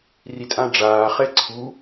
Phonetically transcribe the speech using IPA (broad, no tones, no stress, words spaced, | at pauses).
ritʼãɖ͡ʐaː χɛǀʰu